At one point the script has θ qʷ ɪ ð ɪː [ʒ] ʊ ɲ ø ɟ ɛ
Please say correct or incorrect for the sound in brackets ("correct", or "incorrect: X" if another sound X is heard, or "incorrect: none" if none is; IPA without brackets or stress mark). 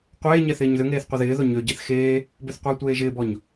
incorrect: ð